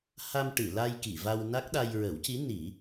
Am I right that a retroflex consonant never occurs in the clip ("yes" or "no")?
no